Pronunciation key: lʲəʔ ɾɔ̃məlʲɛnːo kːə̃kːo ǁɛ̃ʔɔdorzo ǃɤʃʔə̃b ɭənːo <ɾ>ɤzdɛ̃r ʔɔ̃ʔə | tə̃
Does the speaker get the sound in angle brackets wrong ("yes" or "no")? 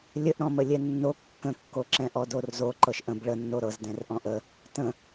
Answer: no